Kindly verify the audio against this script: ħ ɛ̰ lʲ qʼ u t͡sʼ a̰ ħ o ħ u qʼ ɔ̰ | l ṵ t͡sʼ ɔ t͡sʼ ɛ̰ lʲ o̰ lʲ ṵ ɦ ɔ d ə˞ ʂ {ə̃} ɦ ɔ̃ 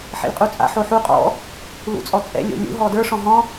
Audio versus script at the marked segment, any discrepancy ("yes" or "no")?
yes